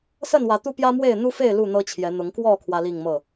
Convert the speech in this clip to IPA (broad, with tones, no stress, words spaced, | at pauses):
sə˥˨nwä˨˦ t̪u˦pjä˦mwe˥˨ɪ̯ n̪u˦fe˥˨ɪ̯ lu˥˨n̪ɤ˦t͡ɕʰjɛ˨˦n̪ʊ˨˦ŋ kwɔ˥˨ kʰwä˦li˥˨ŋ mɤ˥˨